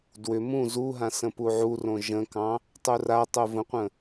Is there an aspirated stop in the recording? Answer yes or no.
no